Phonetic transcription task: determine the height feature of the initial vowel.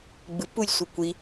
high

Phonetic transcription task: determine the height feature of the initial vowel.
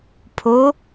mid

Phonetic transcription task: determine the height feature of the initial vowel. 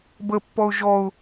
mid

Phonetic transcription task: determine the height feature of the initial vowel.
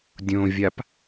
mid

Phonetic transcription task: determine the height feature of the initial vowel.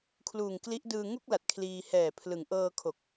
high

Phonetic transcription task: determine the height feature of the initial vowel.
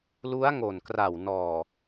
high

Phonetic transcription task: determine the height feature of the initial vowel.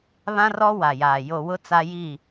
low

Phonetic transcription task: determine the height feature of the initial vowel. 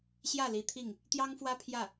low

